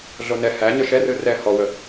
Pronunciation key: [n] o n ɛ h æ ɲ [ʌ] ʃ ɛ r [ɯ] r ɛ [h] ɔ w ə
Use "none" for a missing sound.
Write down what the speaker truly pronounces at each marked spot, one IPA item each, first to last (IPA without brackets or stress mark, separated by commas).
ɮ, ə˞, ɯ, h